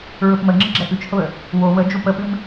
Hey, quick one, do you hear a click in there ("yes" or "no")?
yes